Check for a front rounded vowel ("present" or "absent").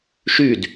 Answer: present